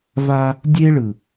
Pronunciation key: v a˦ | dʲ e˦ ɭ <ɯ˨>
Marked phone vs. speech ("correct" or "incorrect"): correct